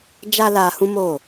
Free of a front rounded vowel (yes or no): yes